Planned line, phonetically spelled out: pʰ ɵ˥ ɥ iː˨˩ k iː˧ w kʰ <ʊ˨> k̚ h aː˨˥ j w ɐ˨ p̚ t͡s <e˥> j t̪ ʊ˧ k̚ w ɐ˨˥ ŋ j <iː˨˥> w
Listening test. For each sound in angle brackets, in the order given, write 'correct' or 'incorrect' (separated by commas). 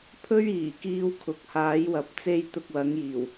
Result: correct, correct, incorrect